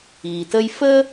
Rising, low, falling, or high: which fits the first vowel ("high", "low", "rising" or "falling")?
low